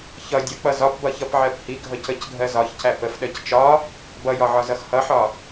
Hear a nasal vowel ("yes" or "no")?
no